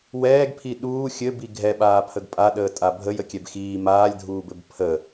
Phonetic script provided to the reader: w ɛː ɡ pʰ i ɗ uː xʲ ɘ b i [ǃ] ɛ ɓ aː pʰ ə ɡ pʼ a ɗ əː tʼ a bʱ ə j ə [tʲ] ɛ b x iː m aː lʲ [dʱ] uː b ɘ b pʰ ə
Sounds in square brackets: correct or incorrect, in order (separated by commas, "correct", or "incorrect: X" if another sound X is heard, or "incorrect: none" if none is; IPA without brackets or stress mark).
incorrect: ɡʱ, incorrect: kʲ, correct